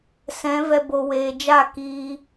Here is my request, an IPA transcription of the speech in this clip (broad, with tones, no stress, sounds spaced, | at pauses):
s ɛ̃˨˦ v ɛ˧ b o˨ w eː˨ d͡ʒ a˦˨ k iː˧